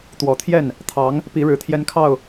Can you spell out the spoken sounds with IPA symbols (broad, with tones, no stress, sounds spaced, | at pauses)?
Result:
t̪ w ɔ˨˩ t̪ʰ j ɛ˥˩ n | t̪ʰ ɑ˧˥ ŋ | p i˧˥ ɻ ɻ̩˧˥ t̪ʰ j ɛ˥ n kʰ ɑ˥˩ ʊ̯